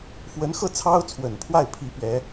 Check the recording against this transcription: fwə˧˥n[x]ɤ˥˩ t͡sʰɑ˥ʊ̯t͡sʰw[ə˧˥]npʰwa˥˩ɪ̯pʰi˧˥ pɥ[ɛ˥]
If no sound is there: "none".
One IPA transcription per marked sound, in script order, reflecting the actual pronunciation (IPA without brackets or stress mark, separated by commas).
x, ə˨˩, ɛ˧˥